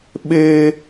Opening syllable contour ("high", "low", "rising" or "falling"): high